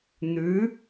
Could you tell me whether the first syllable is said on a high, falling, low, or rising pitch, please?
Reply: rising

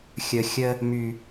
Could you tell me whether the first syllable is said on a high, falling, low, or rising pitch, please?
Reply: low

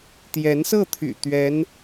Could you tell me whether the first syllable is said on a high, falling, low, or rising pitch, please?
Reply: rising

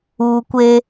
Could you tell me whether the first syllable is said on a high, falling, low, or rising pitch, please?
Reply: low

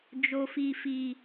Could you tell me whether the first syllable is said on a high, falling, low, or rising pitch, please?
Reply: low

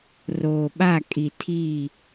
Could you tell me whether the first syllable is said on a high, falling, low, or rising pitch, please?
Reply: low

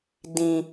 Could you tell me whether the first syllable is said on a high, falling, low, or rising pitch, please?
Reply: low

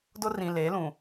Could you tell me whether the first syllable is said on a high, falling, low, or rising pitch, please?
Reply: high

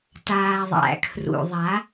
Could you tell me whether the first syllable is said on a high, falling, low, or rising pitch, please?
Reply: low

